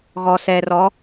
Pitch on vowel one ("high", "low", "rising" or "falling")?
low